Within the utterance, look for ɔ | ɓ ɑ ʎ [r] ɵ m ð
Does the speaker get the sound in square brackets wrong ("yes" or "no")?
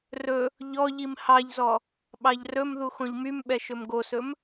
no